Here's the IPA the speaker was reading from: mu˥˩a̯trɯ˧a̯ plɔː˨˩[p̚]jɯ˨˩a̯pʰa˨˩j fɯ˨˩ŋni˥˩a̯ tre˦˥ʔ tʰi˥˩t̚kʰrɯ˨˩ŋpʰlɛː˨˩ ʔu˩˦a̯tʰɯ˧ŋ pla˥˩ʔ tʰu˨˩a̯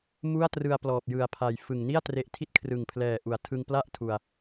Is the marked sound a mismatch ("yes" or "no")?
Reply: no